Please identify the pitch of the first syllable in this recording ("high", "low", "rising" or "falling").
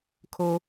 high